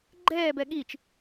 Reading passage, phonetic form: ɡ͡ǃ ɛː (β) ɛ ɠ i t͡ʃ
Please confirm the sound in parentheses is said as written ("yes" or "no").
no